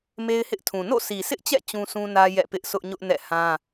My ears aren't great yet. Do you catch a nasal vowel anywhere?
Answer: yes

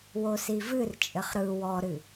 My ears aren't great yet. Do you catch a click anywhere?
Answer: no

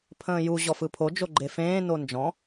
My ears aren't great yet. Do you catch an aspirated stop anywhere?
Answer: yes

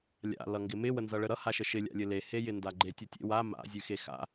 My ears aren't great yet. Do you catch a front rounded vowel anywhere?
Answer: no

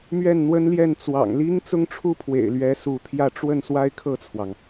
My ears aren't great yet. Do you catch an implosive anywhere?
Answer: no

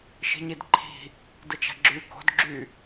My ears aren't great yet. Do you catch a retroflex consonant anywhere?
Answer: no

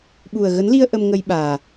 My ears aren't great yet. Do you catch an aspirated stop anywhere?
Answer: no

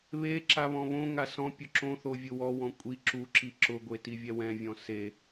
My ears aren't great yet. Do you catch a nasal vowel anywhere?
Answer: yes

